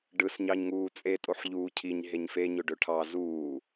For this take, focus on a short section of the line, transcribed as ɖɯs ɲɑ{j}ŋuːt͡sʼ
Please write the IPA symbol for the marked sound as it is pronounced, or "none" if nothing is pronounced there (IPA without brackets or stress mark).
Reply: ɲ